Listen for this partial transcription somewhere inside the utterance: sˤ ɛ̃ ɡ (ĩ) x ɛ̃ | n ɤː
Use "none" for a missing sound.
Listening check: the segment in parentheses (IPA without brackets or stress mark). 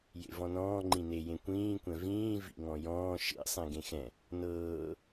ẽ